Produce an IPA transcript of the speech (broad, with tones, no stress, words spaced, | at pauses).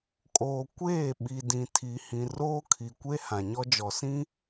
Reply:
kʼoː˨kʷeː˦˨ɓi˨ dĩ˨tʰi˨hĩ˨ roː˦kʰi˨kʷe˦ hã˨ɲɔ˦d͡ʒɔ˨sĩ˦